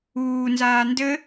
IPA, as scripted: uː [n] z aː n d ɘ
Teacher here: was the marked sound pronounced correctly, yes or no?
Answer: yes